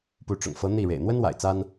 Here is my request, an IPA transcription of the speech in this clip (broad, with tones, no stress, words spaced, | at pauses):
pu˧˥ʈ͡ʂʊ̰˨˩ŋfɤ˧˥ n̪i˥˩ ɻḛ˨˩ɪ̯n̪wə˥nwa̰˨˩ɪ̯ t͡sa˥n